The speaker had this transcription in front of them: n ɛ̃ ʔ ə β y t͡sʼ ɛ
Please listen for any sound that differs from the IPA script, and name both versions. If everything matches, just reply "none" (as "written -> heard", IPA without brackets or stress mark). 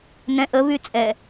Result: none